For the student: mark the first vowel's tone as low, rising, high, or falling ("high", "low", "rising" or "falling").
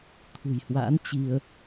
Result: low